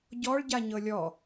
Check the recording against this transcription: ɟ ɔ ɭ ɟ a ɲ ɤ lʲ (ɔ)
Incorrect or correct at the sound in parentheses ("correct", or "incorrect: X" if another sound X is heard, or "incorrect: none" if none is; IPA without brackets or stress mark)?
correct